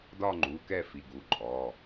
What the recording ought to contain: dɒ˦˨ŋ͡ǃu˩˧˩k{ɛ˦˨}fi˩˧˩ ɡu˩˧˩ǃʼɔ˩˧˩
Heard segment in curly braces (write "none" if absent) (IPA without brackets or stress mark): ɛ˦˨